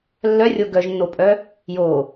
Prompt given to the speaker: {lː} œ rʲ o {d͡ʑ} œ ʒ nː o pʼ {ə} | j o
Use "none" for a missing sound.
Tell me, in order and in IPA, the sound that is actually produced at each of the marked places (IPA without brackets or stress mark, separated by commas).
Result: lː, ɡ, œ